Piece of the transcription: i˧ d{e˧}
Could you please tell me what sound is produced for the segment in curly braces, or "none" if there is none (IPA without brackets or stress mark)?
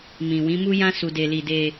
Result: e˧